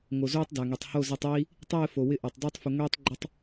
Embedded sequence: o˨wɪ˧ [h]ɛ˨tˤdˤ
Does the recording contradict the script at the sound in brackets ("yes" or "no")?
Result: yes